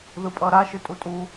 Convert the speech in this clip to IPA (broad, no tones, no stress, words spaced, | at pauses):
ðɯpʼʌɾa ʃɯtʼutʼu